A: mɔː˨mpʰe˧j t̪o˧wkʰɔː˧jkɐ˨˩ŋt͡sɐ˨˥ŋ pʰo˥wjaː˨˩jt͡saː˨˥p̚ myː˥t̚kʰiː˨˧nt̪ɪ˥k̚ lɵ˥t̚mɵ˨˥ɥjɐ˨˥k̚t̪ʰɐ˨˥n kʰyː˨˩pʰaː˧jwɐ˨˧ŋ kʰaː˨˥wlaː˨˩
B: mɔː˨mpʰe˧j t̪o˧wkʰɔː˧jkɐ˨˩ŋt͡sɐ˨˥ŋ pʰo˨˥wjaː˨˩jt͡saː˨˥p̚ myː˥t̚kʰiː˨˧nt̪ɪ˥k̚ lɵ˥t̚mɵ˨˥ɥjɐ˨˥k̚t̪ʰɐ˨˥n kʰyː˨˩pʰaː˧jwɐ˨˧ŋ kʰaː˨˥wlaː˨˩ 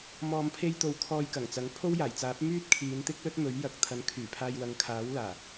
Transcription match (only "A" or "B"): A